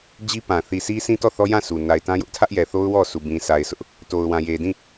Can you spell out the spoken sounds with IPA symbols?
d͡ʑ i˦ p ã˨ θ i˨ s i˦ s ĩ˦ t ɔ˦˨ θ ɔ˦ j ã˦˨ sʰ u˨ n a˨ ɪ̯ t ã˦ j ʊ˦ ʔ tʰ ä˦ ʔ j ɛ˨ θ o˦ ʊ̯ w ɔ˦˨ sʰ u˨ b ĩ˨ s a˨ ɪ̯ s ʊ˦ ʔ | t o˨ ʊ̯ w ã˨ j e˨ d ĩ˦˨

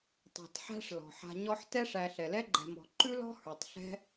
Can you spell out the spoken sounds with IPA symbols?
tˤ ɛ̤˩ t ħ æ̤˦ ʂ l ɔ̤˩ ħ a̤˨ ɲ ɔ˦ ħ t ɛ˥ ʂ æ˨ ɬ ɛ˩ l ɛ˥ ɡ͡ǃ ɛ̤˨ m ɔ̤˨ ǃ ʉ˥ l ɔ̤˥ h ə˞˩ tˤ ɬ ɛ̤˦

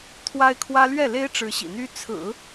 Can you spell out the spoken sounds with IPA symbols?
t̪ʰ w a˥ ɪ̯ kʰ w ä˥ l ɥ ɛ˥˩ l e˥ ɪ̯ ʈ͡ʂ ɻ̩˧˥ ɕ ḭ˨˩ n̪ y˥ t͡sʰ ɹ̩˨˩˦

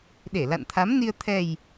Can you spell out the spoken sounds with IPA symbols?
ɗ e˧˩ l a̰˧˨ n t̪ʰ a˨˦ m n i˧ ə̯ t̪ʰ ɛ˨˩ j

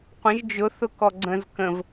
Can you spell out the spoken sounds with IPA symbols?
qʷ ə̃ ʒ d͡ʒ ʊ θ ʊ k ɔ ɡ͡ǀ ə̃ z k ə̃ v

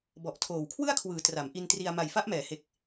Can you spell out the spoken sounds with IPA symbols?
b ɔ˨˩ ʔ tʰ oː˨˩ w kʰ w ɯ˥˩ a̯ kʰ w ɯː˩˦ t r a˩˦ m ʔ i˧ n t r i˧ a̯ m a˨˩ j f a˦˥ ʔ m ɛː˩˦ h e˨˩ k̚

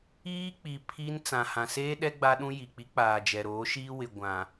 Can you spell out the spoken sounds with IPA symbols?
iː˦ k͡p i˨ pʰ i˦ n t͡s ã˨ h ã˨ s eː˦ ɗ ɛ˦ ɡ͡b a˦ ɗ ũ˦ j i˨ k͡p i˨˦ k͡p aː˨ d͡ʒ ɛ˨ ɾ oː˨˦ ʃ iː˦ w ɪ˨ ɡʷ ã˨

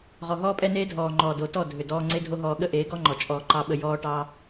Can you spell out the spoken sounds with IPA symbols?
ʁ ɔ˨ ɦ ɔː˦ pʼ ɛ˦ n eː˦ dʱ ɔː˨ ŋ͡ǃ ɔː˨ d o˨ t ɔ˦˨ dʱ ʏ˨ d ɔː˧ ŋ͡ǀ e˦ dʱ o˦ ɦ ɔː˧ ɠ ə˦ ʔ eː˨˦ ɡ ɔ˦ ŋ͡ǃ ɔ˨ t͡ʃʼ ɔː˧ ǃ ɑ˦ ɓ ə˧ j ɔː˦ ʈ ɑ˦

